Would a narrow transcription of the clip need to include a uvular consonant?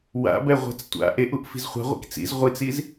yes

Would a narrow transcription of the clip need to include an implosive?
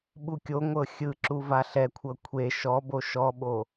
yes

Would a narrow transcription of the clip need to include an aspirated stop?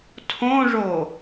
yes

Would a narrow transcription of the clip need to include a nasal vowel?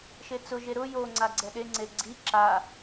no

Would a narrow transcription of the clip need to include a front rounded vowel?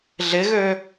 yes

